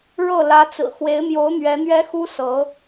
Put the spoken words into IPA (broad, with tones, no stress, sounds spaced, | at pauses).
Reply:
ɻ ɤ˥˩ l ä˧˥ t͡s ɹ̩˨˩ x w e˧˥ ɪ̯ m j o˧˥ ʊ̯ n̪ ɥ ɛ˧˥ n̪ ɥ ɛ˥ x u˥ s ɤ˧˥